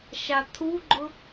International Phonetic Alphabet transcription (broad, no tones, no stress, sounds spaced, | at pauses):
ʃ a t̪ʰ u ɡ͡ǃ ʊ